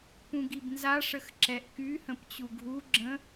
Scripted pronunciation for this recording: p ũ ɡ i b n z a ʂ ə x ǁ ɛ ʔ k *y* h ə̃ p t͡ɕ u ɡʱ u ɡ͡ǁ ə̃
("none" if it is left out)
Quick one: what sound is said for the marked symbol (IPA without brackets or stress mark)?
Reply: y